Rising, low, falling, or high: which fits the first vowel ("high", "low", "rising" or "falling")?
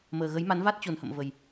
low